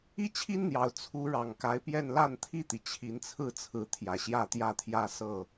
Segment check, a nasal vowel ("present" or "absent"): absent